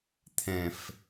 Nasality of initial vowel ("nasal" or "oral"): nasal